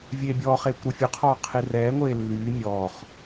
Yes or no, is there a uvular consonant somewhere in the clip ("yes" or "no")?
yes